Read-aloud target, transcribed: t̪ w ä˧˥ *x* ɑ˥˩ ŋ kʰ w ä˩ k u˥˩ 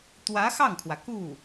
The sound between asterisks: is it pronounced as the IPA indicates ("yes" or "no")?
yes